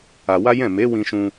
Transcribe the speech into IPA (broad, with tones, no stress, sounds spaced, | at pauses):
a˧ w a˦ j ɛ̃˦˨ m e˨˦ w ĩ˧ ʃ ũ˧